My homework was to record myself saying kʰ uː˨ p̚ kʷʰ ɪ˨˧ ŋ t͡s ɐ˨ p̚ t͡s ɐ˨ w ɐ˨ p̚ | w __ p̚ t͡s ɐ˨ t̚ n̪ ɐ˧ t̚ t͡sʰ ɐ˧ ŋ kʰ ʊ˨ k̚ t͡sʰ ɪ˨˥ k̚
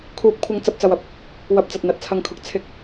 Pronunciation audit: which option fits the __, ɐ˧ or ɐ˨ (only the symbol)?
ɐ˨